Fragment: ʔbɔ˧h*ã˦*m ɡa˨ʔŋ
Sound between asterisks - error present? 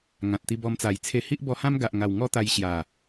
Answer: no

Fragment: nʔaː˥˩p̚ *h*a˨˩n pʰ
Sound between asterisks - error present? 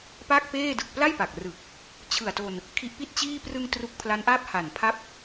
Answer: no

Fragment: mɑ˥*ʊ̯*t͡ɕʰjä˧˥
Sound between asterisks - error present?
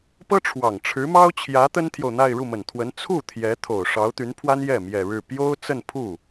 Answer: no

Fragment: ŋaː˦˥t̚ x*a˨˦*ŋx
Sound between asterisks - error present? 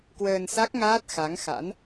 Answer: no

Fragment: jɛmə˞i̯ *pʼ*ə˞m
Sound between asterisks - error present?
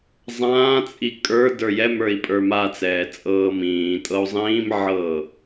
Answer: no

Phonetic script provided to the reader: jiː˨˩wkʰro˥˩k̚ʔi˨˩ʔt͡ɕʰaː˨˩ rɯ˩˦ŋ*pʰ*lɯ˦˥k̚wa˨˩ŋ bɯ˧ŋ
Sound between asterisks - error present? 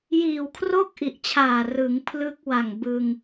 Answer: no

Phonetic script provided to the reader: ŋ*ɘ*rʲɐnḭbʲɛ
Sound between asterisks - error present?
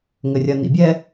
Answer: no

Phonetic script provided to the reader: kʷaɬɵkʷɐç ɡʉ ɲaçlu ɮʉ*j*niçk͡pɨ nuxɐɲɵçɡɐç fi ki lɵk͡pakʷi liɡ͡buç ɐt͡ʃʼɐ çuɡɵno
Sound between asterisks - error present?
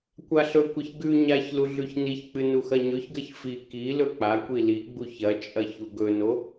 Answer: yes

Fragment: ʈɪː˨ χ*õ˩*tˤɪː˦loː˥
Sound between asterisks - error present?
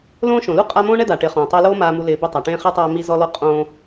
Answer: yes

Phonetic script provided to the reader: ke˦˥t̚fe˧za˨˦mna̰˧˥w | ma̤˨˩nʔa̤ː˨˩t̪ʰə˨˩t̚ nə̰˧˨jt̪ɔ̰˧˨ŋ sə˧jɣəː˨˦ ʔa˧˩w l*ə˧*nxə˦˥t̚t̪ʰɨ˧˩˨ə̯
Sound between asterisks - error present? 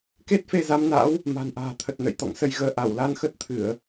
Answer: yes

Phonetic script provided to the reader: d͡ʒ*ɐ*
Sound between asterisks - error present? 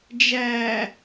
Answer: yes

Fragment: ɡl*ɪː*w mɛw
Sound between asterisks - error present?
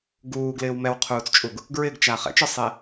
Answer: no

